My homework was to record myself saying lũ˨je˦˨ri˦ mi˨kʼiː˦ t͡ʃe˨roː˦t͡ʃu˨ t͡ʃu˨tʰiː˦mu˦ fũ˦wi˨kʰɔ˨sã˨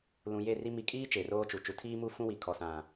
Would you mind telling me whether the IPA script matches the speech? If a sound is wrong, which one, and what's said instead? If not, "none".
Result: none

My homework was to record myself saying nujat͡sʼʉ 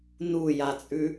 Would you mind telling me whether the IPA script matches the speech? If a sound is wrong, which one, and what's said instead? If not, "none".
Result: none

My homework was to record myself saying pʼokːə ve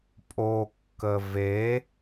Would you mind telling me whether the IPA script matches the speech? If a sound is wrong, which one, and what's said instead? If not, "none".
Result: none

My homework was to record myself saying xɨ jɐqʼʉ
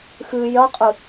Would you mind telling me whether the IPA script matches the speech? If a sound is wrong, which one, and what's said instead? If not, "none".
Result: ʉ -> ɨ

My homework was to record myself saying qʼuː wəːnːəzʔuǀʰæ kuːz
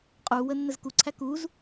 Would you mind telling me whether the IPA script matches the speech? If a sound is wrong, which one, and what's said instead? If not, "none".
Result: ʔ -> k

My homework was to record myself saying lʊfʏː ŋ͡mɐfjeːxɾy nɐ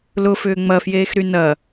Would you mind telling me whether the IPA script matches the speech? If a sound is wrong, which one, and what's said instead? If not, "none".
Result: none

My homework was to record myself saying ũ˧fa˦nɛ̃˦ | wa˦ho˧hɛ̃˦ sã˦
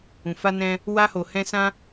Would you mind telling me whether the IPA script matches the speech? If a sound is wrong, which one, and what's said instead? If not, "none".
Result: none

